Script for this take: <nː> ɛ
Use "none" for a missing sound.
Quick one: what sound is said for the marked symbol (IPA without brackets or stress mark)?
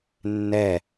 nː